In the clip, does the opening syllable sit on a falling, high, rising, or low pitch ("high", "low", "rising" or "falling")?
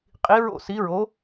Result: rising